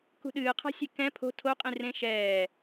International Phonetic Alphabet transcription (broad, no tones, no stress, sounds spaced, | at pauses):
k ṳ ɗ ɨː qʰ a̤ sʲ e k ɛ̃ pʰ o̤ tʰ o qʼ ĩ r ẽ ʃ ɛː